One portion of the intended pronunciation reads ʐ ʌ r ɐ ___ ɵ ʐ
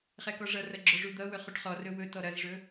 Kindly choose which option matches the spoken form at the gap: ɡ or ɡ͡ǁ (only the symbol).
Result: ɡ͡ǁ